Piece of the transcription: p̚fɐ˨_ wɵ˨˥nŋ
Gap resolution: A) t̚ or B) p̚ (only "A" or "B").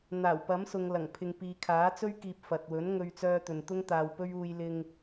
A